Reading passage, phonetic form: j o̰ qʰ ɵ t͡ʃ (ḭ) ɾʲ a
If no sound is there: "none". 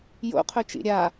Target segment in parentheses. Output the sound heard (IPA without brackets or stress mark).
ḭ